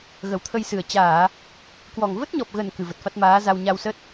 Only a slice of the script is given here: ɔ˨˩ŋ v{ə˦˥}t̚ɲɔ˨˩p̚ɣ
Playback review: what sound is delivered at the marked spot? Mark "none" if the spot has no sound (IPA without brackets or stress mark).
ə˦˥